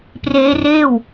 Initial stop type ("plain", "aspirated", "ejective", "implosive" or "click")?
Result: plain